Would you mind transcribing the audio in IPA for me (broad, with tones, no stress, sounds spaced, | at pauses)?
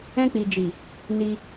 ɛ̃˧ k͡p i˨ d͡ʒ i˨ | n i˧